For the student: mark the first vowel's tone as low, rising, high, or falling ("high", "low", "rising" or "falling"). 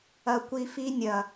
low